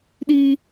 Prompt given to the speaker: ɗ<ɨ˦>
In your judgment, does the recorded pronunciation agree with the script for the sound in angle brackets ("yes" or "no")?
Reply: no